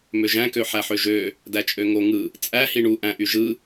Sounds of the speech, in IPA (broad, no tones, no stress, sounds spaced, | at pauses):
m ø ʒ æ̃ k ø ħ æ ħ ø ʒ ø | d æ t͡ʃʼ ø ŋ o ŋ ɯ | t͡sʼ æ h i ɳ u ʔ æ̃ ʔ y ʒ ɯ